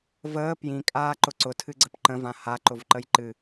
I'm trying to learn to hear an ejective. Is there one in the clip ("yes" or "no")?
yes